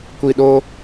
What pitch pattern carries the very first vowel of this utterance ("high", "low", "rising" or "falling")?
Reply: low